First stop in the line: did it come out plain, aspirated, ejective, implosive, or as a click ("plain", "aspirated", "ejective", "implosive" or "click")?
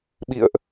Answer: implosive